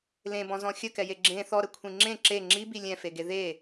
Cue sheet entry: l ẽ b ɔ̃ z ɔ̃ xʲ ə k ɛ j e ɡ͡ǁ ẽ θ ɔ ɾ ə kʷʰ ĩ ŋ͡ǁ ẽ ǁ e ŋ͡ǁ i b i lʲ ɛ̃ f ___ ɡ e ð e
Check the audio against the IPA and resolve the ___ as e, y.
e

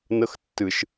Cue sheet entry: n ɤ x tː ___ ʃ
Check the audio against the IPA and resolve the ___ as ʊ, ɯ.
ɯ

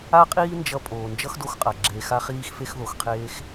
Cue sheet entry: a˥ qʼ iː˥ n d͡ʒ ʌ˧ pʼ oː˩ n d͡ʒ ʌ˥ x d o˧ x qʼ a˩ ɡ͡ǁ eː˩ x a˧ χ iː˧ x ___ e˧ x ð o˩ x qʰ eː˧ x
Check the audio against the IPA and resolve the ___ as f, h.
f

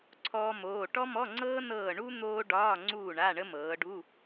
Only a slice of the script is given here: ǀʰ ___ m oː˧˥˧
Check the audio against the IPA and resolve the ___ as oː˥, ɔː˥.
ɔː˥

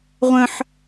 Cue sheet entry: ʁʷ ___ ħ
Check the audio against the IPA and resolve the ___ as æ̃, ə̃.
ə̃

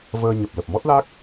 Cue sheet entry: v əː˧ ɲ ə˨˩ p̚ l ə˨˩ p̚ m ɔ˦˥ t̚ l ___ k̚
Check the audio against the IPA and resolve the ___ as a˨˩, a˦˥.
a˦˥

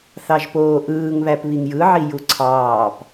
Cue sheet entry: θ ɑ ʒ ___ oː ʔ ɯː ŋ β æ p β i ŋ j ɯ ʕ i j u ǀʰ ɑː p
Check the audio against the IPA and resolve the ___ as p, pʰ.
p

